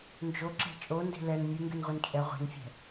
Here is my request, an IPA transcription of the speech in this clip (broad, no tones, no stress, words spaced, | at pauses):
nd͡ʒoǁɛ̤ t͡ʃʼonde̤ lɛn mʲɨŋɡɨnʁʷin t͡ʃʼɛ ʁʷe̤nfʲɛ̤